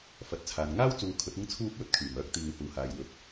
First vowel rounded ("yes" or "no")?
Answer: no